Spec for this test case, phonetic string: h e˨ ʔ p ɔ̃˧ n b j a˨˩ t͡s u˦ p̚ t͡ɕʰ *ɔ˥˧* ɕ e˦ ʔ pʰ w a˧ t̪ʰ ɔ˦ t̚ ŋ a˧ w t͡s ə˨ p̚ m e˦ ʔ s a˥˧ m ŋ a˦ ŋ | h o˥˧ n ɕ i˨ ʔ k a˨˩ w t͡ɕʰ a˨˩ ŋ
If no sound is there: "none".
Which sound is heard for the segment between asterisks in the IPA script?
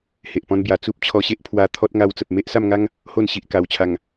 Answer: ɔ˧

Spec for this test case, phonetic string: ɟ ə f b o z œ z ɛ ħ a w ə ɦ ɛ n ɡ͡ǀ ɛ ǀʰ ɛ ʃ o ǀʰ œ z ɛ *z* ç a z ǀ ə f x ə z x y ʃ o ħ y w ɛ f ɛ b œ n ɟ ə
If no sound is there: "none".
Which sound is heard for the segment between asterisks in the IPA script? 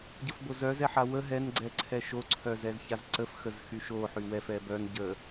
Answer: z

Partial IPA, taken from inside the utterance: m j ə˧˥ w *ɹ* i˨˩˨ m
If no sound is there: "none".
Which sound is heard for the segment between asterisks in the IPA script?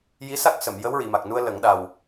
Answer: ɹ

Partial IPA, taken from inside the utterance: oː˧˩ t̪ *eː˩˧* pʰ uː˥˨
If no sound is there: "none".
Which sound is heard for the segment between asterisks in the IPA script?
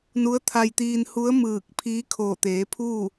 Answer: eː˩˧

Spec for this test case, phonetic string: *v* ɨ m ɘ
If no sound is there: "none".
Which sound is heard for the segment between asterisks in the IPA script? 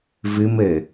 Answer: v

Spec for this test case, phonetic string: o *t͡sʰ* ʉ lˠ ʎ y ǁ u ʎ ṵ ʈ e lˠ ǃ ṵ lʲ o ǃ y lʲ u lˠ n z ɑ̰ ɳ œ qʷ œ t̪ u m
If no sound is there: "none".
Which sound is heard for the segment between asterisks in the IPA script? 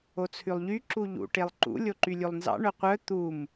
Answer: t͡sʰ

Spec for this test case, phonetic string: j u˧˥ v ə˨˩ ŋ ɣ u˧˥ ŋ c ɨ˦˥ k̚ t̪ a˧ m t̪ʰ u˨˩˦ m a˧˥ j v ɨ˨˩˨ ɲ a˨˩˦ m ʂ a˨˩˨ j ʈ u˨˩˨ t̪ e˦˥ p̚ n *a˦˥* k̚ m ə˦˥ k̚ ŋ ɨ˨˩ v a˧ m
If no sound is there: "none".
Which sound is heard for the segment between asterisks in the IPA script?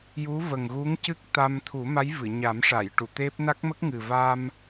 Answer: a˦˥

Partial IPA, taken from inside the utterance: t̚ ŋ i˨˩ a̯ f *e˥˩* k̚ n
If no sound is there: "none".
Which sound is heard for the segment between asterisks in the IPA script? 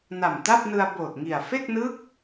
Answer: e˥˩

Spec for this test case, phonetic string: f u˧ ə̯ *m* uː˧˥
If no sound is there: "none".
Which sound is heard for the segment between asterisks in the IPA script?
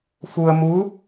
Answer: m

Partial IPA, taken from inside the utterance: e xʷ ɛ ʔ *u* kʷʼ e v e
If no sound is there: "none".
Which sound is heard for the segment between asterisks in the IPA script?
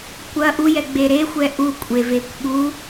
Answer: u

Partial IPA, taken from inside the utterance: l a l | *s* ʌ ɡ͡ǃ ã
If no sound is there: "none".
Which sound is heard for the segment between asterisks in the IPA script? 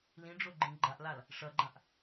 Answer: ʂ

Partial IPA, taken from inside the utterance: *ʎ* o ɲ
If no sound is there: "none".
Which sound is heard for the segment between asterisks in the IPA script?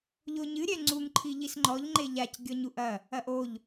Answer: ʎ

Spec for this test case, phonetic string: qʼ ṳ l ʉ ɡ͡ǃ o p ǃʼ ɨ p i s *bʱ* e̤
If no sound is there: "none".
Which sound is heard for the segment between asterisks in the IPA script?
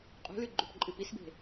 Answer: b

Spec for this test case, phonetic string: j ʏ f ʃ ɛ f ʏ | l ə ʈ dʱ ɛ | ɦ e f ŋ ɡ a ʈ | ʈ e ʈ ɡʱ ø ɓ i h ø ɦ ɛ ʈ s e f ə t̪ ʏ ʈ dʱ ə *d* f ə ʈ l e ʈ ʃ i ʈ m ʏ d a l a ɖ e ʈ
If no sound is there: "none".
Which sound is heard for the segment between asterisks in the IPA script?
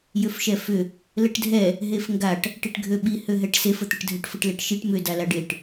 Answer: ʈ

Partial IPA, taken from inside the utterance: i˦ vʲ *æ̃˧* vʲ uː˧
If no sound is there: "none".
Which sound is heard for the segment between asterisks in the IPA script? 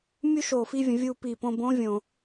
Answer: ə̃˧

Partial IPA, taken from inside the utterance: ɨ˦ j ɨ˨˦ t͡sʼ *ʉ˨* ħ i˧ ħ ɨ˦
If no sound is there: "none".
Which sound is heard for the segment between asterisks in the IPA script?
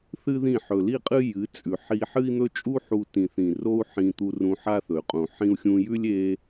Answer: ʉ˨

